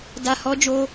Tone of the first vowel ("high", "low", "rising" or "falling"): low